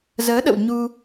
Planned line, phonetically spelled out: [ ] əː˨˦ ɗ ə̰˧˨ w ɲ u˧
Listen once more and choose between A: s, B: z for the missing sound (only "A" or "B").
B